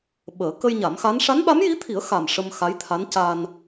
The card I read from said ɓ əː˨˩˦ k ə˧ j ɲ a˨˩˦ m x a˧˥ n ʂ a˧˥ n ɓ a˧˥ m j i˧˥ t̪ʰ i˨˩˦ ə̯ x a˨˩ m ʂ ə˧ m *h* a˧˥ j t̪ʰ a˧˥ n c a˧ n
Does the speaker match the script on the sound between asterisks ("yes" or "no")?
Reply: no